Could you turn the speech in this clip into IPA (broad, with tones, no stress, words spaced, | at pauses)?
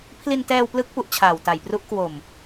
pʰli˧ntɛː˧wplɯ˦˥k̚pu˨˩ʔ t͡ɕʰaː˨˩wta˨˩jpru˦˥ʔ kwo˨˩m